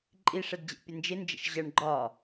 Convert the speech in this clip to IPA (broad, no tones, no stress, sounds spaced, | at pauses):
ǃʼ i ʂ ɛ d d͡ʑ ɛ̰ pʲ ə n d͡ʒ ɪ n d͡ʒ ə̰ ʃ ʑ ʌ ɳ ɡ͡ǃ ɒ